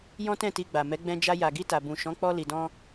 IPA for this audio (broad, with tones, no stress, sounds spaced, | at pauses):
j ɔ̃˦ t ɛ̃˦˨ t i˧ ɡ͡b a˨ m ɛ˨˦ ɡ͡b ɛ̃˧ d͡ʒ a˧ j a˨ ɡ i˧ t a˨ b ũ˨ ʃ ɔ̃˨˦ k͡p ɔ˧ l i˨ d ɔ̃˧